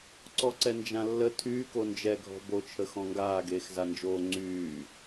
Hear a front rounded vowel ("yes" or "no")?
yes